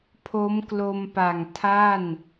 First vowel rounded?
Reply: yes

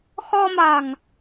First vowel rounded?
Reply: yes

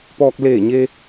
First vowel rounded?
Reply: yes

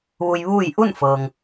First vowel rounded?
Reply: yes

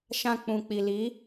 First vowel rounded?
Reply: no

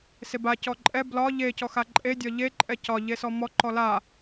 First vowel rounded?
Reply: no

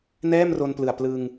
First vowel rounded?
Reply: no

